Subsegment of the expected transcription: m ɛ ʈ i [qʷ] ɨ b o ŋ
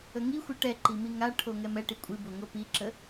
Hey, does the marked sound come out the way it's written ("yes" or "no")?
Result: no